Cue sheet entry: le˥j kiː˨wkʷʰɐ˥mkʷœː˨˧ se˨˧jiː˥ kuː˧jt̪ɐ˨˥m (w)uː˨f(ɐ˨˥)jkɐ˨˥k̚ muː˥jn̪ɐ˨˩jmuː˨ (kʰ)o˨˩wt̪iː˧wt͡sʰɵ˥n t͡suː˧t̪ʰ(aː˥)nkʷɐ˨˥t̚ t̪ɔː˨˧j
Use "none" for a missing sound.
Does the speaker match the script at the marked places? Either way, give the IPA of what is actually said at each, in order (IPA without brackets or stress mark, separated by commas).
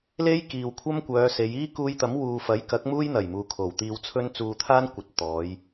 w, ɐ˨˥, kʰ, aː˥